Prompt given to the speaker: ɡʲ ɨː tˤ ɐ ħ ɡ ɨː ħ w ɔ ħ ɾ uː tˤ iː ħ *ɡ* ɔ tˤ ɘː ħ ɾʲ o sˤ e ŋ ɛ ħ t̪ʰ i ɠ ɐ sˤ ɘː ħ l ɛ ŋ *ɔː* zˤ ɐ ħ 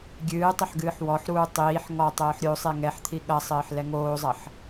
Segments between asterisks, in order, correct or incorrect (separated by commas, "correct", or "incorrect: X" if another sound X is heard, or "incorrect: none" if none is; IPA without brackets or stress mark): incorrect: ŋ, incorrect: oː